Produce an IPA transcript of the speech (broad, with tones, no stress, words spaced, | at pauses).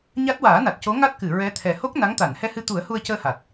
ɲa˦˥t̚waː˨˩˦na˨˩t̚co˧˥ ŋa˦˥t̚kɨ˨˩˨ ɹɛ˧˥t̪ʰɛ˨˩ ho˦˥k̚ na˧˥ŋt̪a˨˩˨n hɛ˧hɨ˧t̪u˨˩˦ə̯ hu˧ə̯cəː˧ha˨˩t̚